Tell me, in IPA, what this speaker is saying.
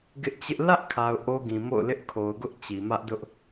ɡ ɪ˦ ʔ t͡ɕ ɪ˦ ʔ l ä˦ ʔ kʰ a˨ ʊ̯ ʔ o˦ ɡ ĩ˨ m o̰˦˨ ʊ̯ l ɪ˦ ʔ kʰ o˨ ʊ̯ ɡ ʊ˦ ʔ t͡ɕ i˨ m ä˦ ʔ d ʊ˦ ʔ

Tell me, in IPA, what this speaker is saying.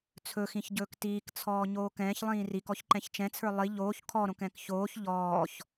t͡sʰ ɵ x ĩ ç ɟ ɵː k t iː k t͡sʰ ɔː ɲ oː k ɛ̃ː ç lˠ ĩː r i k ɔ ç ǃ ɛ̃ ç t͡ʃ ɛ̃ t͡sʰ ə˞ lˠ i ʎ oː ç kʰ ɔ ɾ õ k ɛ̃ k ç oː ç ʎ ɔː ç

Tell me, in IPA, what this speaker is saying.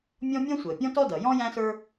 mʲ ɔ̃˥ mʲ ɔ̃˥ sʷ əː˩ pʲ ɔ̃˥ t ɔ˥ d ʌ˩ j ɔ̃˥ j æ̃˥ s ə˞˥

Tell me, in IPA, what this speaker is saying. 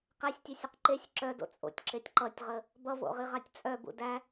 q æ sʲ tʲ œ sʲ ʌ q ǃ e sʲ ǁ œ d o̰ t͡sʼ o̰ tʲ ǁ e tʲ ǃ ʌ tʲ ʁ ə | b ʌ v o̰ ʁ i ʁ a tʲ t͡sʼ œ b ṵ d æ

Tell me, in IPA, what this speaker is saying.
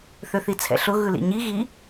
θ ø θ i t͡sʰ ɛ̰ ɬ ʊ ɣ ɯ l ḭ ɲ i ɣ i

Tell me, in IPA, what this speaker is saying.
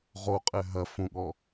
ʁ o qʼ ɛ ɦ ɐ f ũ ɠ ɔ

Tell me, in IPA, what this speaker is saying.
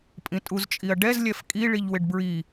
pʼ ĩ tʼ u z t͡ʃʼ i ɐ̯ ɖ ɛ z lʲ ɛ f kʼ i ɭ i ʎ w ɪ ɖ b ɹ i

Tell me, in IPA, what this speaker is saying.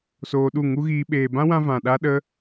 s oː˧ ɗ u˦˨ ŋ u˦ ɣ iː˧ ɓ eː˨ b ã˦ w ã˧ v ã˨ ɗ a˦ ɗ ə˦

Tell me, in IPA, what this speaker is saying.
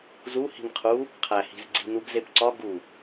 z u h i̤ n qʰ u | qʰ æ h i̤ z ɡ͡ǀ i̤ n u ɡ z e p ǀ ɒ ɡ u

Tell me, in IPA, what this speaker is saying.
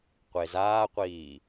qʷ e z aː qʷ iː

